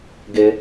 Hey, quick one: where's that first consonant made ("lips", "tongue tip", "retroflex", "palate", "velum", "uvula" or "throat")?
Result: velum